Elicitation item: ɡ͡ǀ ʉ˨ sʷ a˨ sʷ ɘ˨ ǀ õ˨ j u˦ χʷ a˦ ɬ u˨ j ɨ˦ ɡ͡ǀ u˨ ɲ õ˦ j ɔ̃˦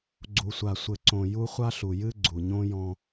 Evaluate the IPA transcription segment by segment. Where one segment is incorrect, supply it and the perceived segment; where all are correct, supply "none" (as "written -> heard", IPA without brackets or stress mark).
ʉ˨ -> u˨